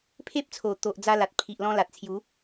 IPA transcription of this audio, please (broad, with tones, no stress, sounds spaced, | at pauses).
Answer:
pʰ e˦ p̚ t͡sʰ o˨˩ t̪ o˨ ʔ d͡z a˧ l a˨ t̚ pʰ i˨ ʔ l ɔ̃˧ l a˨ t̚ t͡sʰ j u˨˦